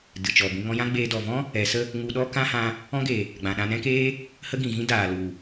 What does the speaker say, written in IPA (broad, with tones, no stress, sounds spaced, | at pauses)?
d ɨ˨ t͡ʃ ɔ˨ b ĩ˧ ŋ ɔ̃˧ j ã˦ ɡ͡b eː˧ d ɔ˨ v ɔ̃˦ | ɛ˨˦ s ə˦ | ŋ u˧ ɗ ɔ˦ k ã˦ h ã˧ | ɔ̃˦ ɡ e˨ | ɡ͡b ã˨ ɗ ã˧ n ɛ̃˦ k eː˦ | h ə˦ ɡ ĩ˨ ɣ ĩ˦ d aː˨ l u˨